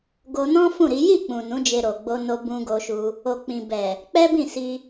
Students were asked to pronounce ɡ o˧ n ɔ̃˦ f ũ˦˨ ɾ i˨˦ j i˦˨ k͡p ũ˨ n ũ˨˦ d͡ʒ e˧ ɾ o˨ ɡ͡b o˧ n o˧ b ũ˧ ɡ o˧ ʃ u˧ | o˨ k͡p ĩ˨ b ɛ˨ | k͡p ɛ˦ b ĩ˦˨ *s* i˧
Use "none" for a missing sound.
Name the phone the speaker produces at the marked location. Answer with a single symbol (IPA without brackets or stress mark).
s